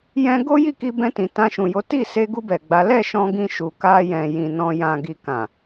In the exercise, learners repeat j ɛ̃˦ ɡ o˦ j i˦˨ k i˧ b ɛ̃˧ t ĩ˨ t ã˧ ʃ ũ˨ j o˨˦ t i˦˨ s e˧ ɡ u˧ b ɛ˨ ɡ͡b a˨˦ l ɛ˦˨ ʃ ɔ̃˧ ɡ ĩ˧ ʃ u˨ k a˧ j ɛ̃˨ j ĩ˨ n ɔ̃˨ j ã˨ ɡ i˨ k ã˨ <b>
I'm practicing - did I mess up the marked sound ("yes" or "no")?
yes